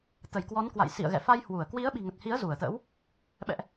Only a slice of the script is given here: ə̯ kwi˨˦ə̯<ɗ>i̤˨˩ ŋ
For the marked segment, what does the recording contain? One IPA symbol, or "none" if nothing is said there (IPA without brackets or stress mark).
ɓ